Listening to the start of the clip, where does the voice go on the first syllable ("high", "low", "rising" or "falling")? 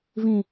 low